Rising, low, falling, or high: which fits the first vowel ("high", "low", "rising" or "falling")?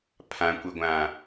low